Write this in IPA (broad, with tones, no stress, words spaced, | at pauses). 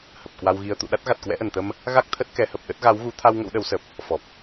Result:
hə˨˩p̚kwa˧wɣi˧ə̯ t̪ṵ˧˨ɗa˦˥t̚ ɣa˨˩t̚kwɛ̰˧˥ʔə˧˩nt̪ə˧m | ɣa˦˥k̚ t̪ʰə˦˥t̚kɛ˨˦hə˨˩p̚ɗə˦˥t̚ ɣa˨˦w ɣu˨˦ t̪ʰa˧w ŋə̰˧˥wɗə˨˦wsə˨˩p̚ | fɔ˨˩p̚